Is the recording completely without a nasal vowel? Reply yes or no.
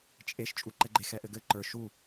yes